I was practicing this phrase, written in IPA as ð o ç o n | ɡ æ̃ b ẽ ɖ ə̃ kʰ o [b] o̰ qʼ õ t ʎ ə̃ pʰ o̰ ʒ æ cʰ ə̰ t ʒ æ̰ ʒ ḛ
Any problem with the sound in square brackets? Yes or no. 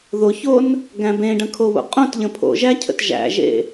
yes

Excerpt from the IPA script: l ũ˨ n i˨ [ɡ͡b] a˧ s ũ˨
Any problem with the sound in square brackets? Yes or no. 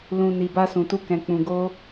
yes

